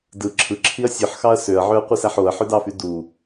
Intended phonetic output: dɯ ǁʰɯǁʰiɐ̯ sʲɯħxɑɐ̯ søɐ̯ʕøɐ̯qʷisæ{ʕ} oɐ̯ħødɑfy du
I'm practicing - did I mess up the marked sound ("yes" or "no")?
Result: yes